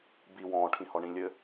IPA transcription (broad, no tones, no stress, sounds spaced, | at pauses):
b i w ɔ̃ː ʈʰ ĩ h ɔ ɳ ĩ lʲ ɘ